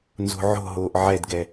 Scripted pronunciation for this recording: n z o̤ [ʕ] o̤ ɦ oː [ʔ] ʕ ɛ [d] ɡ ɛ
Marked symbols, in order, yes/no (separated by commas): yes, yes, yes